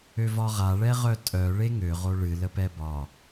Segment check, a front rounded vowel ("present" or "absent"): present